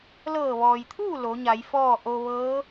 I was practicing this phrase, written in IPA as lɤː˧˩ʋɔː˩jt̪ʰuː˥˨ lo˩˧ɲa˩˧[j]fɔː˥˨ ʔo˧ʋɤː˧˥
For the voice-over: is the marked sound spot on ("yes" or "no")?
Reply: yes